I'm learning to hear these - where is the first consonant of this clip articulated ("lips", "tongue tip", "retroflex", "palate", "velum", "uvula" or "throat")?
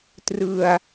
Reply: tongue tip